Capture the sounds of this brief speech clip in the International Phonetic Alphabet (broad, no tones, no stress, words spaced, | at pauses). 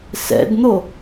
sɛ̰dn̪o